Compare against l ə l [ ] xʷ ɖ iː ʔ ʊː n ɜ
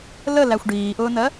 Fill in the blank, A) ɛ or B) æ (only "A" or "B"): B